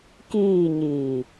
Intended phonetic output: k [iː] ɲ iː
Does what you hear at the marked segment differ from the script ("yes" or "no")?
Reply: no